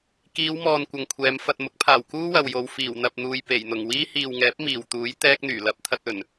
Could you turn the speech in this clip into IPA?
kiː˨˧wmɔː˨n kʷɐ˨ŋkʷʰɛː˨˧m fɐ˨t̚mʊ˨˥k̚pʰaː˨˩w kuː˥wɐ˨wjo˨w fiː˨˩wn̪ɐ˨p̚n̪uː˨j pe˨˩jn̪ʊ˨˩ŋwiː˥ hiː˨wŋɛː˨˥p̚ miː˨˩wt̪uː˨˥j t̪ɛː˥k̚n̪yː˨˩lɐ˥p̚ t̪ʰɐ˧t̚ɵ˨˩n

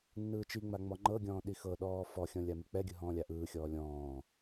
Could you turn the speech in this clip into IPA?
nːɯːt͡ʃiŋ͡ma ŋ͡mɔŋ͡ǃɤɡʲɔ̃ː ɗixɤɗɔː fɔxʲɔ̃ lʲamik͡pɛɡʲɯ ɦɔ̃ːlʲaʔɯːxʲɔː lʲɔ̃ː

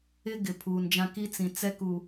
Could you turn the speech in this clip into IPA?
ɪ˦ ɡɪ˨ pʰuː˨nd͡ʒã˦ ki˦t͡sĩ˨ t͡sɛ˦ku˨

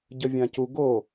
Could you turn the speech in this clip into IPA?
ɟəvʲãcu ɡo

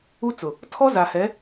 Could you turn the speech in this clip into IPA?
u˦t͡sʊ˨ | tʰɔ˦ za˨hɛ˨˦

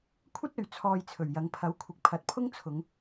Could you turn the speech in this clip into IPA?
kʷʰɐ˥t̚ɵ˨ɥ t͡sʰɔː˧jt͡sʰɵ˨˩ɥjɐ˨˧ŋ pʰɐ˨˥wkʷʰɪ˨˥k̚pʰɐ˨˥t̚pʰʊ˥ŋ t͡sʰʊ˨˧ŋ

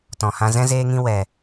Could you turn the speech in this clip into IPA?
tɔ̃˧hã˦ zɛ̃˦zeː˦ŋĩ˦ wɛ˧

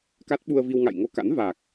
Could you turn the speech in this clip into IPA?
ka˦˥t̚ɓu˧ə̯vi˧w ŋa̰˧˨jŋo˧ka̰˧˥n va˨˩k̚

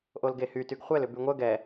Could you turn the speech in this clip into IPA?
ʔolɡehytyɡ χʷɛlʏ byŋʷœ ɡɛ

